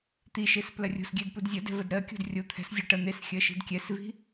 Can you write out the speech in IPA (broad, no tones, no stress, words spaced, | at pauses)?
t̪iʃes plɐrʲo̤sɡʲɛd pudzʲɐdɛ̤ vədɾɜkʲo̤d rʲo t̪ʰɛ̤s zʲɐ ʈɐ n̪esxʲɜ ʃi̤dkʲɛsvi̤